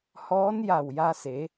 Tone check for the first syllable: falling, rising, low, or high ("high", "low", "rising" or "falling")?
rising